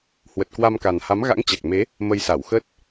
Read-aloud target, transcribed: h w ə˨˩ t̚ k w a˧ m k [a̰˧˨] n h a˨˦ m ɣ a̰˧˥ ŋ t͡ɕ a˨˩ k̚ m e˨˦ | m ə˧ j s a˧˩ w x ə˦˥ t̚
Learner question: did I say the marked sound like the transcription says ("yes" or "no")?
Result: no